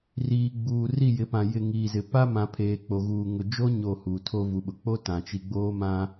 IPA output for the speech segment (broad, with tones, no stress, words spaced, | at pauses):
riː˨ɡ͡buː˨ ri˦˨jɪ˨˦pã˨ jɪ˨ŋiː˨zɪ˨ pa˦mã˨pʰeː˨ k͡po˨ɣuː˨ ŋʊ˨d͡ʒo˦ ɲo˦˨huː˨ tʰo˦vu˨ɓʊ˨ k͡po˦ tã˨t͡ʃi˦ ɡ͡boː˦mã˦